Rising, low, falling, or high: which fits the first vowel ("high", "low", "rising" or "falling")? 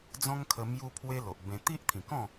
high